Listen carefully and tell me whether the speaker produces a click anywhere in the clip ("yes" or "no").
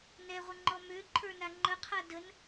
yes